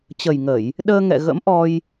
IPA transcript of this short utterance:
t͡ɕ ə˨˩ j ŋ ə˧˩˨ j | ɗ əː˧ ŋ ɛ̰˧˨ ɣ ə̰˧˥ m ʔ ɔ˧ j

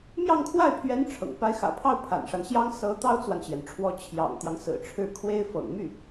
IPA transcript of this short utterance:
m j ɑ˥˧ ŋ kʰ w a˥˩ ɪ̯ pʰ ɥ ɛ˧˥ n ʈ͡ʂʰ ɤ̰˨˩ ŋ p a˧˥ ɪ̯ x ä̰˨˩ pʰ ɑ˥˩ ʊ̯ pʰ a̰˨˩ n ʂ a˦ n ɕ j ɑ˥ ŋ s ɤ˧˥ t̪ ɑ˥ ʊ̯ t͡s w a˨ n t͡ɕ j ɛ˩ n ʈ͡ʂʰ w ɔ˧˥ t͡ɕʰ j ɑ̰˨˩ ŋ t̪ j ɑ˦ ŋ s ɹ̩˨˩ ʈ͡ʂʰ ɻ̩˥˩ kʰ w e˥ ɪ̯ f ɤ̰˨˩ ŋ m y˥˩

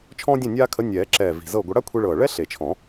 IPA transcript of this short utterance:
t͡ʃʰ ɔ̃ː˥ dʲ ẽ˥˨ nʲ aː˥ kʰ ə˧˥ nʲ ɛː˨˩˦ ǁ ɛː˨˩ v i̤˨˩ z ɤ˥˨ ɡʷ ə˧˥ ɽ a˥ kʷʰ i˧ ɭ ɤː˨˩ ɭ ɛ˥ ɬ e˨˩ t͡ʃʰ ɔ̃˨˩˦

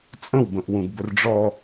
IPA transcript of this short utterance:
t͡sʼ ə̃ w b ə̃ ʔ w ũ ɡ b ə r ɖ͡ʐ ɔ

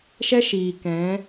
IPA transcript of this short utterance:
ʃ ɛ˦ ʃ iː˨ k ɛ̃˨˦

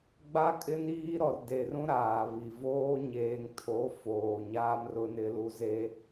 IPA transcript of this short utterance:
ɡ͡b a˦ kʼ ɪ˦ n iː˦ ɾ ɔ˨ r d e˨ r ũ˦ ɾ aː˨ β i˨ v oː˦ ɲ eː˨ ŋ tʰ o˨˦ f oː˨ ɲ aː˦ m r ʊ˦ n ɪ˦ l u˦ z e˦

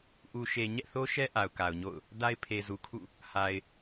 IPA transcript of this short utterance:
ʔ u˨ ʃ e˨ ɲ ɛ̰˦˨ θ o˦ ʃ ɛ˦ ʔ a˨ ʊ̯ k a˨ ʊ̯ ɲ o̰˦˨ ʊ̯ | d a˦ ɪ̯ pʰ e˨ z u˨ kʰ ṵ˦˨ | h a˨ ɪ̯

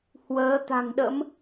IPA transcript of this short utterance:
h w əː˨˦ t̪ a̤˨˩ ŋ ɗ ə̰˧˥ m

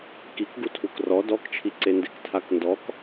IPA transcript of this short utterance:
k i k ɡ u tʰ u k r ɔ d ɔ k t͡ʃʰ i ǀ e n d e k tʰ a k n d ɔ k

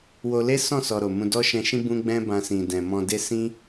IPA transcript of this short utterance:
w o˧ l e˦ s ɔ̃˦˨ s ɔ˨ ɾ o˨ m ũ˧ d ɔ˦ ʃ ɛ̃˧ ʃ ĩ˦ b ũ˦ ɡ͡b ɛ̃˦ b ã˧ s ĩ˨ d ɛ̃˨ m ɔ̃˧ d e˦ s ĩ˦

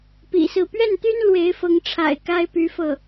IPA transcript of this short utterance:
p ḭ˨˩ s ɹ̩˥˧ p ɥ ɛ˥˩ n t̪ y˥ n l w e˧˥ ɪ̯ f ɤ˧˥ ŋ ʈ͡ʂʰ a̰˨˩ ɪ̯ k a˥ ɪ̯ p y˧˥ f ɤ˥˩

